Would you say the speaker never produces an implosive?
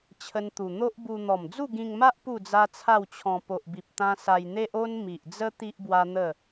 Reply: yes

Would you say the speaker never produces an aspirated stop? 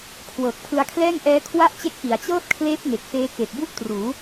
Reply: no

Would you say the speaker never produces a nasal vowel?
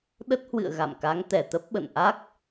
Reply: yes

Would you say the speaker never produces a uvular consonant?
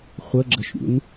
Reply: no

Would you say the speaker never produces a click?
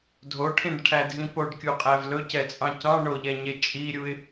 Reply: yes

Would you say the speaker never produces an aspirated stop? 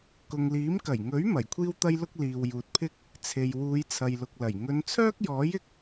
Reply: no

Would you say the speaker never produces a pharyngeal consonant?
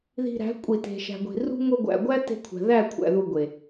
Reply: yes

